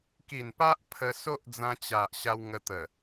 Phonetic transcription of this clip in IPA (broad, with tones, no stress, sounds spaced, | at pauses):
k i˨˩ n p a˦ ʔ pʰ ə˧ s o˦ ʔ d͡z ã˧ t͡ɕ a˨ ʔ ɕ a˧ w ŋ ə˧ t̪ ə˨˩